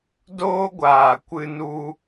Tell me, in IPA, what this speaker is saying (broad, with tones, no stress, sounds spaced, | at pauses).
d oː˦ ɡʷ aː˨ kʷ ɨ˦ n u˦